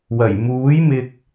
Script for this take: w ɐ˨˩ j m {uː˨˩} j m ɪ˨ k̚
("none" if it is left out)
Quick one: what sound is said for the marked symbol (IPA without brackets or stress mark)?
uː˨˥